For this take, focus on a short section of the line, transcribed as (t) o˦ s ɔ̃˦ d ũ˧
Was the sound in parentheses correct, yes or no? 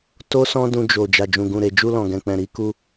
yes